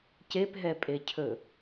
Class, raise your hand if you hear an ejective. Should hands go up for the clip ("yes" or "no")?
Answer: yes